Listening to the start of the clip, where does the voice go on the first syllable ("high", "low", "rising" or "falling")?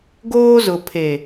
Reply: high